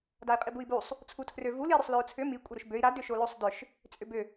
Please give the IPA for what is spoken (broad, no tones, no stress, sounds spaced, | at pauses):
d a i̯ qʼ i b u i̯ b u sˤ | t͡sʰ u tʰ r ø v u l i ɾ ʏ sˤ l ø u̯ t͡sʰ ʏ m i kʷʼ ɐ ɾ ʏ ʃ b ø i̯ ɾ a d ʏ ʃ o l o sˤ d ʏ ʃ | t͡sʼ ʏ b ʏ